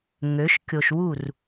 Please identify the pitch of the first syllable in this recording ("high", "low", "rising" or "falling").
rising